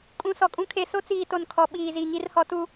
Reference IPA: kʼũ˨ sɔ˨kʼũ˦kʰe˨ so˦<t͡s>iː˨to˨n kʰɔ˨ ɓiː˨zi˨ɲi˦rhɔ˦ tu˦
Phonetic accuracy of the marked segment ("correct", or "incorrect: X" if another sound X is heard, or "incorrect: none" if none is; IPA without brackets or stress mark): correct